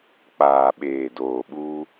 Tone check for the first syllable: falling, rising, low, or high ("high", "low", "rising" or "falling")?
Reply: low